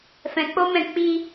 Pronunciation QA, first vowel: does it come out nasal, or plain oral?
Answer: nasal